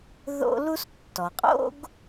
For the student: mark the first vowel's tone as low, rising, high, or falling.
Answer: high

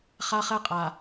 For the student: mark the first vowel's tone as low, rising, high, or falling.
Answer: high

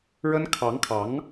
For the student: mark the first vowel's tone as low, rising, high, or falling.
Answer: high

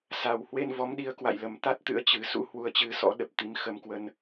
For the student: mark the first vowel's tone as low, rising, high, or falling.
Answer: low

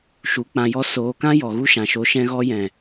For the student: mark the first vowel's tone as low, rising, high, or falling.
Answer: rising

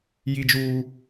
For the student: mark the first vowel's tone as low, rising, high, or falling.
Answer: high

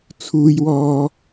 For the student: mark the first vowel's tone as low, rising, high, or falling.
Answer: high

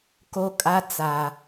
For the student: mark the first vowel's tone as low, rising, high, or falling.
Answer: high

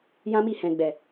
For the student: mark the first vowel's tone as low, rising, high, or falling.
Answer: high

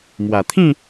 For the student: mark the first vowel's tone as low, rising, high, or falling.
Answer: low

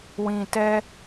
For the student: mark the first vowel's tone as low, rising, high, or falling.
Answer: low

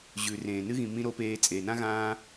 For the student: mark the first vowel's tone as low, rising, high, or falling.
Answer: low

